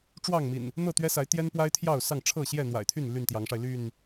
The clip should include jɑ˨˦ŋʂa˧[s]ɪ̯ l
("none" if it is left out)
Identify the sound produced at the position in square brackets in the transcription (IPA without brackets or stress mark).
none